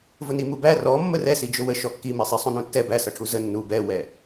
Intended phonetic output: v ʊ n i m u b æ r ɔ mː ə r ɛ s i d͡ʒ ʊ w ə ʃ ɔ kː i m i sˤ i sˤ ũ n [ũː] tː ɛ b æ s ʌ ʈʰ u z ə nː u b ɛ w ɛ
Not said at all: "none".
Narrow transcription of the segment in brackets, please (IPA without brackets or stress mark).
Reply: ũ